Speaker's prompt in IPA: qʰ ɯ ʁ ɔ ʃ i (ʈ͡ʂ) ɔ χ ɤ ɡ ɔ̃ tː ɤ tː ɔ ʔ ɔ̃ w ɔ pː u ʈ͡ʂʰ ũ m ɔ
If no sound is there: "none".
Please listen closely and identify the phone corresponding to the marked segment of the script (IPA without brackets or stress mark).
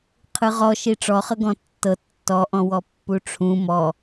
ʈ͡ʂ